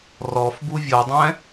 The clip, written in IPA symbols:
r ɔ f b u vʲ ɤ dˤ ɛ̃

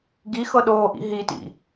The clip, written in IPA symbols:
ɡ i x ɤ ɗ oː ʔ ḭ ɦ i t ḭ

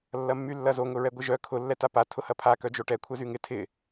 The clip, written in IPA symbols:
lː ɐ mː y lː ɐ z o ŋ ʊ ɹ ɛ ɡʷ ɪ ʒ œ kʰ ʊ lː ɛ t a p a tʰ ʊ h ɐ pʰ a k œ d͡ʒ o ʈ ɛ kʷʰ ɛ z y ŋ ɪ tʰ ɪ

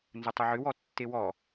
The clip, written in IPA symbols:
n z ə tˤ ʊ ʕ ʏ w ɔ tː e w ɔ

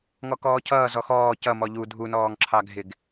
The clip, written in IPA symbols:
ŋ ɔ k ɔː cʰ ʌː z ɔ x ɔː c ʌ m ɔ ʎ u dʱ u n ɔː ŋ ǁʰ ɑ ɡʱ ɪ ɡ

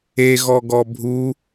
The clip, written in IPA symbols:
e ɣ ɔ ɡ ɔ bʱ u

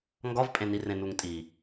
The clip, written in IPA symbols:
ŋ ɡ ɒ v pʼ ẽ n i r ẽ n u ŋ tʼ i

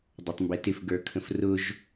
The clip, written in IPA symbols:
dˤ ə˞ tˤ m b ɛ t ɪ f ɡ ə˞ kʰ ə̃ f r ʊ ʒ

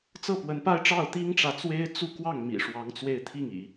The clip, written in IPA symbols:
t͡s ɤ˥˩ p w ə˧˥ n p a˥ ɪ̯ ʈ͡ʂ ɑ˥˩ ʊ̯ t̪ i˥ ŋ ʈ͡ʂ ä˨ t͡s w e˥ ɪ̯ t͡s u˥˧ k w ɑ˥˩ ŋ m ḭ˨˩ ʂ w ɑ˧˥ ŋ t͡s w e˥˧ ɪ̯ t̪ʰ i˥˩ ŋ ḭ˨˩˦

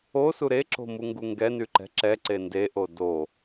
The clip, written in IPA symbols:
o s u ɾ e ǁ o̤ m u ŋ ɡ u ŋ ɡ ɛ n y ǃ ɛ̤ ǁ ɛ ǀ e n d e ʔ o d o

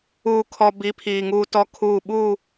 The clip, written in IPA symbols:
uː˨ kʰ ɔ˨ b i˨˦ pʰ iː˨ ŋ uː˦ t ɔ˦ kʰ uː˦˨ ɓ u˦˨

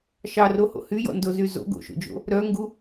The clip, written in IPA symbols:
ʃ ɑ r o h o̰ h y j ɔ̰ n d o z y z o̰ ɡ o̰ ʃ o̰ d͡ʒ o̰ | ɾ œ ŋ ɡ u

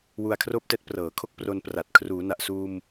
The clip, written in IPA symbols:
w u˧ a̯ kʰ r oː˥˩ p̚ t ɛː˦˥ t̚ p r ɤː˩˦ kʰ o˥˩ k̚ p r o˧ n p r a˨˩ t̚ kʰ r uː˩˦ n a˨˩ ʔ s uː˧ m

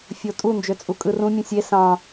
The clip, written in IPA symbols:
fʲ o tʼ u n d͡ʒ ø t͡sʼ u kʼ ɯ r ũ mʲ ũ sʲ e s ɑ̃

